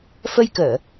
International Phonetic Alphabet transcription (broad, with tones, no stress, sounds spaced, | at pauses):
f ə˧ j k əː˧˩˨